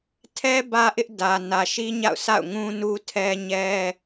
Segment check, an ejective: absent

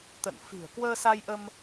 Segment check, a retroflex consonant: absent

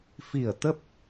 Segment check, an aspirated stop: absent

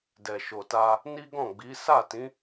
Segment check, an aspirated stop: absent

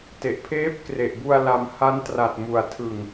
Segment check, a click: absent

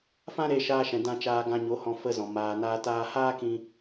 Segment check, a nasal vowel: present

